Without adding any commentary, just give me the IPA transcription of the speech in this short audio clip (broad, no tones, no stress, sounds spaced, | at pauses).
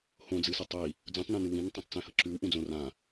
h õ d͡z ɨ s e tˤ i | d͡z ũ tˤ n ũ n ɨ w ĩ n tˤ õ tˤ t͡s ẽ h ɐ ǁ ʉ w ʔ ũ d͡z õ r ã